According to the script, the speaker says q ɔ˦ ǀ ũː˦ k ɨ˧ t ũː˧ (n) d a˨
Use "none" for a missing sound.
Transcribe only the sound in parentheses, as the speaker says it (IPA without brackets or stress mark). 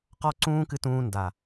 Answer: n